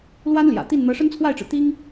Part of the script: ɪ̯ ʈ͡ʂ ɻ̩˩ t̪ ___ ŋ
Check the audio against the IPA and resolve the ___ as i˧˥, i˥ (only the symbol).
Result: i˥